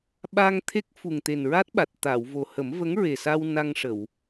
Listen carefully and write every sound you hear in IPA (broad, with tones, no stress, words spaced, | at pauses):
ɓa˧ŋt̪ʰe˦˥k̚ fu˨˩ŋt̪e˨˩nɹa˦˥t̚ɓa˨˩t̚ t̪a˨˩˨wvo˨˩ hə˨˩˦mvə˧˥ŋɹe˨˩sa˧w na˧ŋʂə˨˩˨w